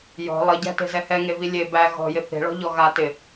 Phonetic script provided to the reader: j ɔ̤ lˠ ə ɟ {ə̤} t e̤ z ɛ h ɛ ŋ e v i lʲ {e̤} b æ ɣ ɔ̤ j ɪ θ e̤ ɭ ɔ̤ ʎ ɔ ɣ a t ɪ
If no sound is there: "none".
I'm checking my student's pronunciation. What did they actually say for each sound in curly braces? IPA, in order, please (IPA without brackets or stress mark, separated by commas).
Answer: æ̤, e